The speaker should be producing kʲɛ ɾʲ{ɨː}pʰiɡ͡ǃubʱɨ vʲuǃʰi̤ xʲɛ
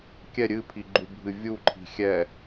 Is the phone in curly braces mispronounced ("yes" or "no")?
yes